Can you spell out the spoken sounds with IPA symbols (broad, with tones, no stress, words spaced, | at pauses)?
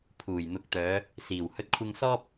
pʰuː˨˩jn̪ʊ˨k̚t̪œː˨˧ | siː˨˩whɵ˧t̚kʷʰɪ˧ŋsɔː˥p̚